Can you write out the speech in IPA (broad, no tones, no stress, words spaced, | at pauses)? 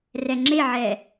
rɛŋ͡ǁeʕɛ